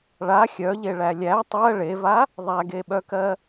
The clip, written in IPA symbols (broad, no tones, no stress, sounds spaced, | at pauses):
ɭ a xʲ œ ʎ e ɭ æ lʲ æ tˤ ɜ ɭ e v a | ðˤ æ ɡ e ɓ œ k ɜ